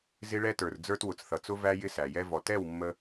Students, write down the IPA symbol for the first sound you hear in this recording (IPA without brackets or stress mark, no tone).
z